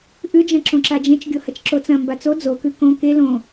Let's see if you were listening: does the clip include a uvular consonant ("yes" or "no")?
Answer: no